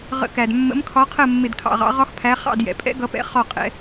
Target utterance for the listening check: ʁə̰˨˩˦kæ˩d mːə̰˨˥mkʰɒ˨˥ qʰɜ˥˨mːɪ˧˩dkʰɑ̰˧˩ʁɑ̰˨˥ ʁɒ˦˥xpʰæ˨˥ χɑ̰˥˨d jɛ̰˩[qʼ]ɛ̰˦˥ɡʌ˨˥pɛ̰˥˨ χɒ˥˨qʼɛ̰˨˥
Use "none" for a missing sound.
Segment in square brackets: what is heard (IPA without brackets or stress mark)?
pʼ